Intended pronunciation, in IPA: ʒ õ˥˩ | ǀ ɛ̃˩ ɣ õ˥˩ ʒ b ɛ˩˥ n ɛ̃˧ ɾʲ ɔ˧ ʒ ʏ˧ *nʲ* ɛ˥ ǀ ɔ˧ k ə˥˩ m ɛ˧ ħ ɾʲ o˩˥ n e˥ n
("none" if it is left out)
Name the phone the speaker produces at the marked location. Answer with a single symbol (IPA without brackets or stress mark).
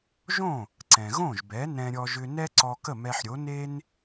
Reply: n